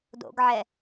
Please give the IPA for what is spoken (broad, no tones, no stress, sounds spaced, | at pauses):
d o̰ ɡ ʕ ɛ